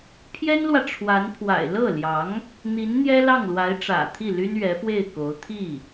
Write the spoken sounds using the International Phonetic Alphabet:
pʰjɛ˥nlwä˨ ʈ͡ʂʰwa˧˥npʰwa̰˨˩ɪ̯ lɤ˥˩ljɑ˧˥ŋ | n̪i˧˥n n̪jɛ˥lɑ˥˩ŋlwa˧˥ɪ̯ ʈ͡ʂä̰˨˩t̪ʰi˥˩ly˥n ɥɛ˧˥fwe˥˩ɪ̯ko˧˥ʊ̯ t̪ʰi˥˩

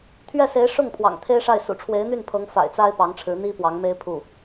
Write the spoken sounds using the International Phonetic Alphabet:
t̪ʰɥɛ˥˩se˧˥ɪ̯ ʂʊ˥˩ŋ pʰwɑ̰˨˩ŋt̪ʰe˥ɪ̯ʂa˥˩ɪ̯ sṵ˨˩ʈ͡ʂʰwe˧˥ɪ̯n̪y˥˩npʰɤ˧˥ŋ fa̰˨˩ɪ̯t͡sa˥ɪ̯ pɑ˧˥ŋʈ͡ʂʰɻ̩˧˥n̪i˥ pwɑ˧˥ŋme˥ɪ̯ pʰu˥˩

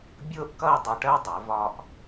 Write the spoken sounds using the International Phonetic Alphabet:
bʲʊː˥ʔkʌ˥˧e̯ dˤʌ˧˩ʈɜ˥dˤɛ˩˧ vɒ˧ʔ

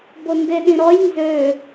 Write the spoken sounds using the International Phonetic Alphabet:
bondeɗĩɾɔj nzø

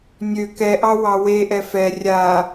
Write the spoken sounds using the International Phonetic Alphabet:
nʲø kɛʔɑ wɑweʔɛ fɛ rʲa

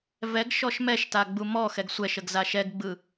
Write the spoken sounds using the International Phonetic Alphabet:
vɛɡ ʃɔʃmɛʃta ɡ͡bumɔxɛɡ sʷɛʃəɡ zaʃɛɡɡ͡bɯ

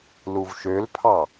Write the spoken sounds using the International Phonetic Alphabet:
luvʃølpʰɑ

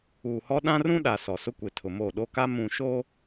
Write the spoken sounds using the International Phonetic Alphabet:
uː˨hɔ˦ ɗã˦rũ˦ɗa˨ sɔ˨sʊ˦kʷe˨ tʰʊ˨mo˦˨ ɗo˦ka˦ mũ˨ ʃo˦

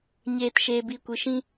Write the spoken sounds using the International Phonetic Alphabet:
ɲeː˨t ʃeː˨bi˨kʷɨ˨ʃĩ˧

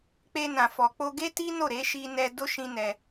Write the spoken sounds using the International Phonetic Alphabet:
k͡pe˧nã˨ fɔ˨k͡po˧ ɡe˦ti˦no˦˨ɾe˨˦ ʃi˧nɛ˧ do˦ʃĩ˧ nɛ˧

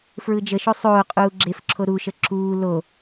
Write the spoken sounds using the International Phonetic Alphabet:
fɹɯd͡ʒəʃo sˤoː qʼuːɡ͡ǁefǁʰo ɾuʃə ǁuː lo

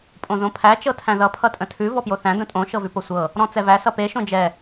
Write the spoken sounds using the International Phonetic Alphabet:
pʼõzõpʰæ t͡ʃɤtʰæ̃ðʌ pʰʌtʼə̃tʰʉ vɔpjoθæ̃ də̃tʼõ ʃɤvʉposʷɤ | ɾɔ̃t͡sɛvæ sʌpe ʃõd͡ʒɛ

